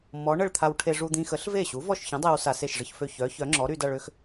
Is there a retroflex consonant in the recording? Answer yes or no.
yes